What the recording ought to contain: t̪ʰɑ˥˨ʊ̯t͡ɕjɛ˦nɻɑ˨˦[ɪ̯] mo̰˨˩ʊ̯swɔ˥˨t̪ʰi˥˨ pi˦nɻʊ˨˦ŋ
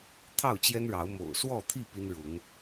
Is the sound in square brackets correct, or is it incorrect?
incorrect